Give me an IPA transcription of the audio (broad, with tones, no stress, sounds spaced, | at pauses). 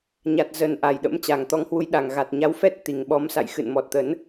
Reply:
ɲ a˨˩ t̚ z ə˨˩ n ʔ a˨˩ j ɗ ə̰˧˥ m t͡ɕ a˨˩ ŋ t̪ ɔ˨˦ ŋ h w u˨˦ j ɗ a˨˩ ŋ ɣ a˨˩ t̚ ɲ a˨˦ w f ɛ˦˥ t̚ t̪ i˨˩ ŋ ɓ ɔ˨˦ m s a̰˧˨ j x ɨ̰˧˨ n m ɔ˨˩ t̚ t̪ ə˨˦ n